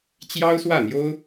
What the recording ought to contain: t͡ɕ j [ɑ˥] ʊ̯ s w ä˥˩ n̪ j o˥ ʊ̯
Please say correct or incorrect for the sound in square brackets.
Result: correct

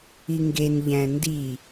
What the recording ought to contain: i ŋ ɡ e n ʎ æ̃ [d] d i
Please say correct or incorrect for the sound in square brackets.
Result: incorrect: n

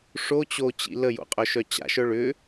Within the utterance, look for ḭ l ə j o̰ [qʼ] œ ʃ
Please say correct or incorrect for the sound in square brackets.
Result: correct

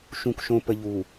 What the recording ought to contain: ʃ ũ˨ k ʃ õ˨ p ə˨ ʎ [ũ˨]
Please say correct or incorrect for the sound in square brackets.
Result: incorrect: u˨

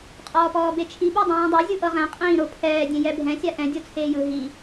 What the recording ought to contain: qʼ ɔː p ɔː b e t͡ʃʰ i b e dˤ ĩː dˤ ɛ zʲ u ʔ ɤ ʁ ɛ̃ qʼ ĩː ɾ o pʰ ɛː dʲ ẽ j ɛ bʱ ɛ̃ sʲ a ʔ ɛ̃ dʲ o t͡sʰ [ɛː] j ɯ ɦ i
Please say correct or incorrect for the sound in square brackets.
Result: incorrect: eː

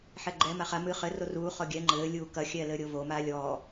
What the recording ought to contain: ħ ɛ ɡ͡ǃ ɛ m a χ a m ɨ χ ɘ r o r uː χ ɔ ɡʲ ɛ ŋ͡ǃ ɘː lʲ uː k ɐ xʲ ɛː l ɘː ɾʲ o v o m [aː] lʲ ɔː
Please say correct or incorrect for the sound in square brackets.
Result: correct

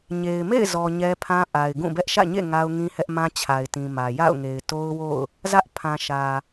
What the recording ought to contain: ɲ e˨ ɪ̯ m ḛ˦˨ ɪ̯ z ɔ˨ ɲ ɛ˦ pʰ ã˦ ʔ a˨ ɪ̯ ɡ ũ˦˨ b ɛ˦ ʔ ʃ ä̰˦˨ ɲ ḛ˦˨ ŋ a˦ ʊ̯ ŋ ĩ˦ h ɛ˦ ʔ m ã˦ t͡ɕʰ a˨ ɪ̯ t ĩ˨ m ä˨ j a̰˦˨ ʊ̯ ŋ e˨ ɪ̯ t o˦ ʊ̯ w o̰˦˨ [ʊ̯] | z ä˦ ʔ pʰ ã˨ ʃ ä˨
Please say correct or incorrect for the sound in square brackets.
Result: correct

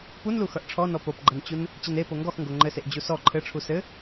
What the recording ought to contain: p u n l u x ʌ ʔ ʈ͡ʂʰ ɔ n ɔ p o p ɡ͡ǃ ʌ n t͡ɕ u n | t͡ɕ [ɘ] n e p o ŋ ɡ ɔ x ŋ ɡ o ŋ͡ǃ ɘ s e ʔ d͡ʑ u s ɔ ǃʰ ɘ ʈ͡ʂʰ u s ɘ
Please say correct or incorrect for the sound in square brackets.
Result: correct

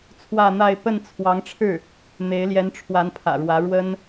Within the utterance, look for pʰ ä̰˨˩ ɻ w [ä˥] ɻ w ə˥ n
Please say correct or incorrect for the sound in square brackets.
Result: incorrect: ä˧˥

